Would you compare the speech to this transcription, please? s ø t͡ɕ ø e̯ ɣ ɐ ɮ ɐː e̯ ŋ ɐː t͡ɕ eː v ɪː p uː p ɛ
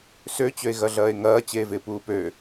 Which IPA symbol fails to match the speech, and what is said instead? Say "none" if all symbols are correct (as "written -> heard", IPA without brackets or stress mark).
ɛ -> ø